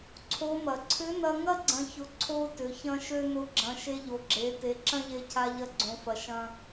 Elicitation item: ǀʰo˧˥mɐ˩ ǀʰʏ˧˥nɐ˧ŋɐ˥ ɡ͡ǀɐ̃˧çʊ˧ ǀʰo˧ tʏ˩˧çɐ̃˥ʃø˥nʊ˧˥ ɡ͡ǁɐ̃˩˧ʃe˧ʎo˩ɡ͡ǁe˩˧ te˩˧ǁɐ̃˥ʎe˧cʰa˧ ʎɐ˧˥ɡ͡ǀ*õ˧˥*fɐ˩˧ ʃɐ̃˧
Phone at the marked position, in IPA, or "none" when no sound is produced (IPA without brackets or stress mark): õ˩˧